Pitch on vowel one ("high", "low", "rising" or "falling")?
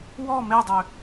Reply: falling